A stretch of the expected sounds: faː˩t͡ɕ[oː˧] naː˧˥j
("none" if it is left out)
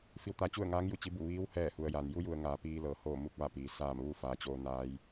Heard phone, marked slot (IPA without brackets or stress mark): oː˧